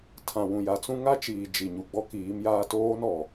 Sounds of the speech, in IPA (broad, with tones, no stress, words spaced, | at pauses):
tʰã˨wũ˨ja˨t͡sũ˦ ŋa˦t͡ʃiː˨ d͡ʒi˨ɲu˨ ɡ͡bɔ˦kiː˨˦mjaː˦ toː˦nɔ˨